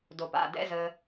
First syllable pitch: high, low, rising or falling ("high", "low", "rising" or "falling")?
low